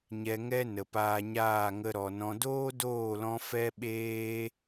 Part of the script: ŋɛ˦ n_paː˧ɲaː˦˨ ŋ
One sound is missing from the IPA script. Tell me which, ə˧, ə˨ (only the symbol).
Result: ə˨